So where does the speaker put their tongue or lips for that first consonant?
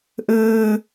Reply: throat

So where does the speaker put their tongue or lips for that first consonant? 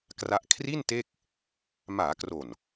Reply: velum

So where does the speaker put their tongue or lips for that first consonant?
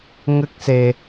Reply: velum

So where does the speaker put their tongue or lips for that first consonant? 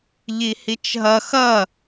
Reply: palate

